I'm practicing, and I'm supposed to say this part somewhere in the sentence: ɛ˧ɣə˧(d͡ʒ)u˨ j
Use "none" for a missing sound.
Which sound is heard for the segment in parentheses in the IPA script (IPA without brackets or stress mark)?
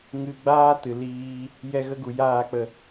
ɡ